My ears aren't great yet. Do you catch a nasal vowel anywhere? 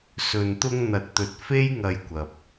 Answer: no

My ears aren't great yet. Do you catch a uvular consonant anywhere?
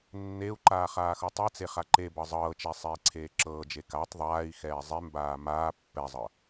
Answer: yes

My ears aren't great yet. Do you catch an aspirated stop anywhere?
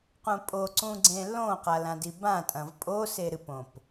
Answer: no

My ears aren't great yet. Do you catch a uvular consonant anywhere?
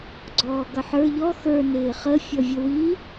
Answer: yes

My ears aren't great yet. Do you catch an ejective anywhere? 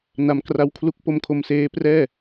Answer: no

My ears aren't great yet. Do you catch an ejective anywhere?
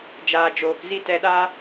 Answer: no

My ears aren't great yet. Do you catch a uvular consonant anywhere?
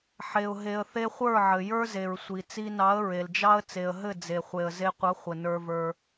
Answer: yes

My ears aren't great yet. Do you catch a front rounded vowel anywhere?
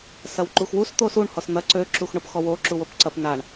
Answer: yes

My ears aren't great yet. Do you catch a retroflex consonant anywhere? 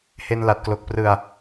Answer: no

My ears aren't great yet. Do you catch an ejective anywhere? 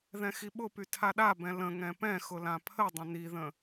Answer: no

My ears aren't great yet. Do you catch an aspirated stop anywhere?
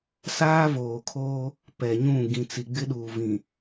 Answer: yes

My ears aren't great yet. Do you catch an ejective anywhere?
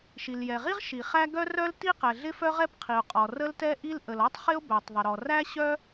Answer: yes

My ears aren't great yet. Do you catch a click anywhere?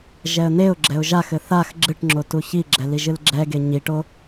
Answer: yes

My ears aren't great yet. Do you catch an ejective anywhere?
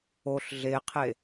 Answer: no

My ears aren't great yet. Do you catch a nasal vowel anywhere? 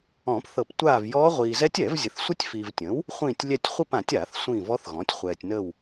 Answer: yes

